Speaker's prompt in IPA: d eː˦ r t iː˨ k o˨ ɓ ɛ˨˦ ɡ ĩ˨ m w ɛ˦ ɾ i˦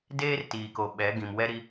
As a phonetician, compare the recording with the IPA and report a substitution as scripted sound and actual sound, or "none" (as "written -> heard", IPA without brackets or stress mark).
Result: none